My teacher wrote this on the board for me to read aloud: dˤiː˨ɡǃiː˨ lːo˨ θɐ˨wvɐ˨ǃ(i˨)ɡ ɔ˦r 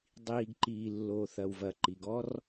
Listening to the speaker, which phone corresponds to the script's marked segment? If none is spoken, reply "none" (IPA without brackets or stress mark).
i˨